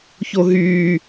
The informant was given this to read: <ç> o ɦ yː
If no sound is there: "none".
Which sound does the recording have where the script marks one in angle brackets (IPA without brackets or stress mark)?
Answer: ç